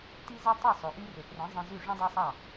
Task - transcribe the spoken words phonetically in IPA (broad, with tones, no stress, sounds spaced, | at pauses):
t i˥ z i˥ tˤ i˥˩ sˤ o˩ ʔ y˧ r ɵ˩ p r ɛ̃˩˥ zˤ ɛ̃˧ z ʉ˥˩ ʐ ɔ̃˥ dˤ æ˥ sˤ ɑ˥˩